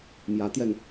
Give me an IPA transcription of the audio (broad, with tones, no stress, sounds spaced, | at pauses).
m j ä˧˥ t̪ j ɛ˧ n